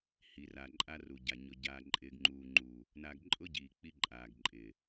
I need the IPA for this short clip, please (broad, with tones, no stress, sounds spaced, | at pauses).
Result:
h i˨ r a˨ ǃʼ a˦ r u˨ ɟ a˨ ɲ ʊ˨ ɟ aː˨ ǃʼ ɪː˨ ɡ ŋ͡ǃ uː˨ ŋ͡ǃ uː˨ | n a˨ ɡ ǃʼ ʊ˦ ɟ iː˨ k͡p i˦ ǃʼ aː˨ ɡ ǃʼ ɪː˨